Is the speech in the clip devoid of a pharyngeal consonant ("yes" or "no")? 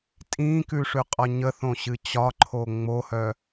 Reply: yes